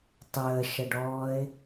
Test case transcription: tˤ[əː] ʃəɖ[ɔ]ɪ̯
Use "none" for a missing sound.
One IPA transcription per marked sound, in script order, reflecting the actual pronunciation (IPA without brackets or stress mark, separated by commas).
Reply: əː, ɔː